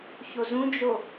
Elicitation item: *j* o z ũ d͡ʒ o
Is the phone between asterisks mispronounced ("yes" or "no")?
yes